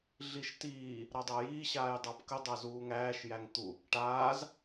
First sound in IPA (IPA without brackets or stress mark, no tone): ɮ